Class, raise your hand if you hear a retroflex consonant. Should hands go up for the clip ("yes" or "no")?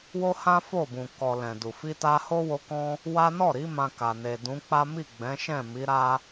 no